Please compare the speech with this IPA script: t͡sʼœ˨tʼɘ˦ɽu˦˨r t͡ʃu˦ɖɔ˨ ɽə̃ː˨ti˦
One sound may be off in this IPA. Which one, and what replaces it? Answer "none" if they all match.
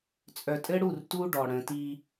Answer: t͡ʃ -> t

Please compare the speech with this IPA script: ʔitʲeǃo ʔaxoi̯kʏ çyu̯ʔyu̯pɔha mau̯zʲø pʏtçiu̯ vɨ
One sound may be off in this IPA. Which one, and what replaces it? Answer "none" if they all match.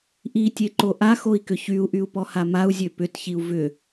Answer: ɨ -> ʏ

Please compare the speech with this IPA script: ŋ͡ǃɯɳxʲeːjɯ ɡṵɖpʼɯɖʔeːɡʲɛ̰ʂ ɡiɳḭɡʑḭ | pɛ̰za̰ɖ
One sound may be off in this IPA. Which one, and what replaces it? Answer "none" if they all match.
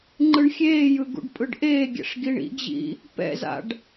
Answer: none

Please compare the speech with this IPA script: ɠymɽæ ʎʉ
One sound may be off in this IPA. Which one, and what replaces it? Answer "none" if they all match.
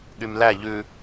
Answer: ɽ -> l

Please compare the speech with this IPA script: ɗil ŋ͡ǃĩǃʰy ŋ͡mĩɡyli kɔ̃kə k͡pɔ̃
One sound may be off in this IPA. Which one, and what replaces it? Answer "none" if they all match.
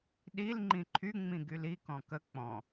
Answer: none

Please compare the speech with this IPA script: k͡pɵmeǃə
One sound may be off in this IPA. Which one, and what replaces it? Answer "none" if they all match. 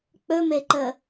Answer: none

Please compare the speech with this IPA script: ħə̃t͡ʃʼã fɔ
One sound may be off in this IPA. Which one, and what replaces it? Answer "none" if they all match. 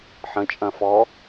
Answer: ã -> ɐ̃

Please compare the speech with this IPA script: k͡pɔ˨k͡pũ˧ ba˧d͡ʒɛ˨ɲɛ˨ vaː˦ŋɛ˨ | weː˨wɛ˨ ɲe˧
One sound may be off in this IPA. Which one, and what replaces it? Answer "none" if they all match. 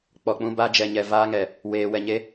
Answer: none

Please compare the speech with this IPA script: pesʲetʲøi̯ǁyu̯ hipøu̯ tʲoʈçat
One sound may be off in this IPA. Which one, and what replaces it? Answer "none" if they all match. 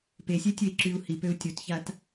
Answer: ʈ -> t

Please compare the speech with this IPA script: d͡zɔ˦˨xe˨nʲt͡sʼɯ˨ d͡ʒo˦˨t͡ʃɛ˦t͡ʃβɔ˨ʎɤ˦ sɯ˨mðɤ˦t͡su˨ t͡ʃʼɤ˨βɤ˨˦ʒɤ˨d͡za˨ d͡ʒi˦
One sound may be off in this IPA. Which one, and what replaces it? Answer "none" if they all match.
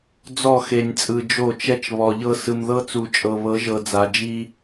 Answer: none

